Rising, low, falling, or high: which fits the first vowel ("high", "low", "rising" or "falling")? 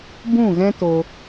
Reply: falling